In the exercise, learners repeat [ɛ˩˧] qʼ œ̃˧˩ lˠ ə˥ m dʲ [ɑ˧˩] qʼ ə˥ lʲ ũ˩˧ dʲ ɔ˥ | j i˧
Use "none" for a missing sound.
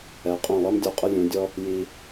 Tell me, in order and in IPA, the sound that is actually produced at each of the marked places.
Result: ɛ˩˧, ɔ˧˩

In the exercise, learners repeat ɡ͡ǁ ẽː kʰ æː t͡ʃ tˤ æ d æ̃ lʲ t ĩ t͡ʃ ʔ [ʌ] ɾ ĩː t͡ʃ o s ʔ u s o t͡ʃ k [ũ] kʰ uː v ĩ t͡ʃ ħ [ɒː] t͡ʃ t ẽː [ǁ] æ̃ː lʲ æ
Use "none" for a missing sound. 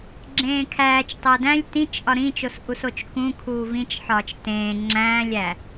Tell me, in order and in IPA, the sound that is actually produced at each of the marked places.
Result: ɒ, ũ, ɒː, ŋ͡ǁ

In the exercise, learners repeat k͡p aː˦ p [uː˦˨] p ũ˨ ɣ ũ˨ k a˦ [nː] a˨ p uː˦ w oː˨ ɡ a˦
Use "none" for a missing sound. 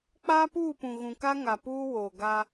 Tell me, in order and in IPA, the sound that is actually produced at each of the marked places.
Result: uː˦˨, ŋ

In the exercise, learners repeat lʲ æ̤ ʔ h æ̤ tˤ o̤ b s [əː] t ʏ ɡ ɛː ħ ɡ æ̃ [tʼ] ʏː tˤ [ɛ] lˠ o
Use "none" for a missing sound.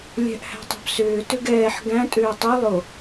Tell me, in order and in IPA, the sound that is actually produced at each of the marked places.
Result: ʏː, tʼ, ʏ

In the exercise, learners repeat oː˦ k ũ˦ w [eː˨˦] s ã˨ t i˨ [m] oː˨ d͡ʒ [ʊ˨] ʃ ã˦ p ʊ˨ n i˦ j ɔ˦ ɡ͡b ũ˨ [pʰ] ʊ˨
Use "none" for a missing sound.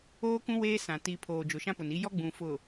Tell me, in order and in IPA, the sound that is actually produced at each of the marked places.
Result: eː˦, pʰ, ʊ˨, f

